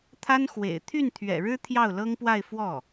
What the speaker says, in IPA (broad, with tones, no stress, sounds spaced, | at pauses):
t̪ʰ a˥ n x w ḛ˨˩ ɪ̯ t̪ʰ y˥˩ n t̪ʰ ɥ ɛ̰˨˩ ɻ ɻ̩˥ t̪ʰ j ɑ˥˩ ʊ̯ l ɤ˥ ŋ p w a˥˧ ɪ̯ f w ɔ˥˩